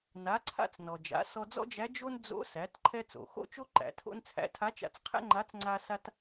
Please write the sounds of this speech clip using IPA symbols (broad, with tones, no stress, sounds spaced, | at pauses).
n a˩˧ ǀʰ a̰˧ t͡s n ɔ˩ d͡ʒ a̰˩˧ s ɔ˧ d͡z ɔ̰˥ d͡ʒ æ˧˥ d͡ʒ o˥ n d͡z o̰˧˥ s æ˩˧ t ǃʰ ɛ˧ t͡s o̰˩ x o̰˥ t͡ʃ o˥ ǃ æ̰˩˧ tʰ o̰˥ n t͡sʰ æ̰˧˥ tʰ a˧˥ t͡ʃ a̰˧ t͡s qʰ æ̰˥ ŋ͡ǃ a˧˥ t͡s ŋ͡ǀ a˥ s a˥ t